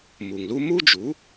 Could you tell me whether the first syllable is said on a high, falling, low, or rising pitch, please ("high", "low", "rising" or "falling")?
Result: low